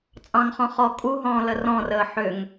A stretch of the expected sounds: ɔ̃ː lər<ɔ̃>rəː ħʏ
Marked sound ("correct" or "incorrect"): correct